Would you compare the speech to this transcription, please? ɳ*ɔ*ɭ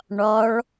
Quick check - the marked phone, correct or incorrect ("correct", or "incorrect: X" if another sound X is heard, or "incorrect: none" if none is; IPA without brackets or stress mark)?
correct